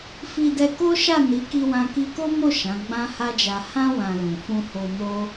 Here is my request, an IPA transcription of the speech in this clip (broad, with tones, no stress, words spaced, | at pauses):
fi˧dɛ˧ko˦ ʃa˦˨ni˨˦ki˧ wã˧ki˧ko˦mo˦˨ ʃã˨˦ɡ͡bã˦ha˦d͡ʒa˧ hã˦ wã˧lũ˨ fũ˧ho˧ no˦